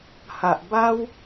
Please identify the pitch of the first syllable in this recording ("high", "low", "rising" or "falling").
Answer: low